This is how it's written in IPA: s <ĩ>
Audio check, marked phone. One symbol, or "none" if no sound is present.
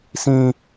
ĩ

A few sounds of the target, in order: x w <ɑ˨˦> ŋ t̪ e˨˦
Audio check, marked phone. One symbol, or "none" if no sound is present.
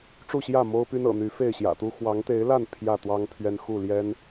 ɑ˨˦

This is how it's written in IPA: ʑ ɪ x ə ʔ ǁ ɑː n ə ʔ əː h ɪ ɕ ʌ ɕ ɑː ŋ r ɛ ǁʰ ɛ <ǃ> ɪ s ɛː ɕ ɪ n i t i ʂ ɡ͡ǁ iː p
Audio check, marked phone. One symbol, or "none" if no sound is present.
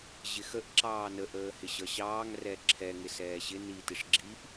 ŋ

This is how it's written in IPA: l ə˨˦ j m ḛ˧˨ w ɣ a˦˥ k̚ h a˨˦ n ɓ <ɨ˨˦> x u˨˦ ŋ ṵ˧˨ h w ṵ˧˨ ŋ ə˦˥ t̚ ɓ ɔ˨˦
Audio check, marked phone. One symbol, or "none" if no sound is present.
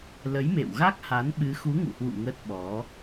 ɨ˨˦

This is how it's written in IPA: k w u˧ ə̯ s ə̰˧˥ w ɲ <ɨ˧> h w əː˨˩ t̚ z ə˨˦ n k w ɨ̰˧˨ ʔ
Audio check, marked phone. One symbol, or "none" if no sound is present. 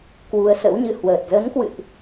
ɨ˧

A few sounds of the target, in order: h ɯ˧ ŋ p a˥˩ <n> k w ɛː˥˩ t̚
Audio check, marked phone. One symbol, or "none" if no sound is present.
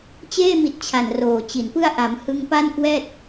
n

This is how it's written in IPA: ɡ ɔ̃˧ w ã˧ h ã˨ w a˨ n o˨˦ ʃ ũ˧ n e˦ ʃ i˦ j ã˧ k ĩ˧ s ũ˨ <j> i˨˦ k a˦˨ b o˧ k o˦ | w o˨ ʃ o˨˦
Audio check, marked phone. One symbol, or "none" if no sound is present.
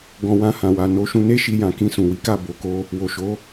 w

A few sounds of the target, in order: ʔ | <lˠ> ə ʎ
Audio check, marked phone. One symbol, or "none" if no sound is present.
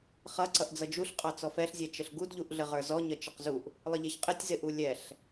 lˠ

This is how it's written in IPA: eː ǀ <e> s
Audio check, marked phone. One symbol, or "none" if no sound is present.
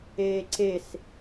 e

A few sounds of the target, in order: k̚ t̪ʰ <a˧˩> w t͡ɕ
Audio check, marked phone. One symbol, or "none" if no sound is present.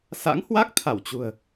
a˧˩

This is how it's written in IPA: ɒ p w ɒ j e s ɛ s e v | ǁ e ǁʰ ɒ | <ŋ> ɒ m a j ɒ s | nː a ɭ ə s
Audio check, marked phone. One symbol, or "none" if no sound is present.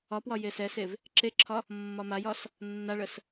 mː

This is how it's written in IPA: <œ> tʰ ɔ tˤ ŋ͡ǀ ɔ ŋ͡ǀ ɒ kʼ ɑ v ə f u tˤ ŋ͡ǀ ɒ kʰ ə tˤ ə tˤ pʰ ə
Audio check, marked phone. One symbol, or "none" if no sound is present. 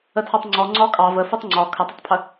ə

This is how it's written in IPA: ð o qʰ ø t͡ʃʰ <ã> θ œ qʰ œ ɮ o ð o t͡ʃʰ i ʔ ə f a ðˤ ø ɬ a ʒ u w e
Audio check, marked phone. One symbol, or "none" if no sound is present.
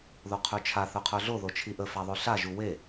a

